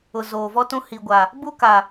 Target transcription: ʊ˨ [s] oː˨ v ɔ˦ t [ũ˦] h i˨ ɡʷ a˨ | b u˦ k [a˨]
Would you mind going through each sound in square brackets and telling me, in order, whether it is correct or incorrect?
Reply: incorrect: z, correct, correct

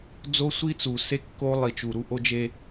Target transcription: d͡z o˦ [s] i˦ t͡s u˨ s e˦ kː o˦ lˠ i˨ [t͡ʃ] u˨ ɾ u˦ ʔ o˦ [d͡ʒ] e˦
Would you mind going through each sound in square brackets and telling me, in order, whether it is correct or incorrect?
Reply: incorrect: sʷ, correct, correct

